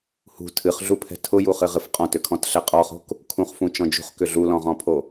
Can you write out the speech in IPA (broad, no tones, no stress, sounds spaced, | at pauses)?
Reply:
h ṳ tʰ ɨ χ ɮ u pʰ ɛ̤ tʰ ʊ j u χ ɨ ʁ ɨ f qʼ ɔ̃ t ʏ kʰ ɔ̃ t ɬ ɛ qʼ ɔ χ o̤ k | kʰ ũ χ f ũ t͡ʃ ɔ̃ d͡ʒ ṳ χ k ʏ ɮ u l ɔ̃ ʁ ɔ̃ pʰ o